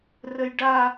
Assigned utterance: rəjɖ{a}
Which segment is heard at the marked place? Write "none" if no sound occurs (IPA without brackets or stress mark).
a